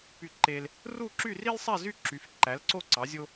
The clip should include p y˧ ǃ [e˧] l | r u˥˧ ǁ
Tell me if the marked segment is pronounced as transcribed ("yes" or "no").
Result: yes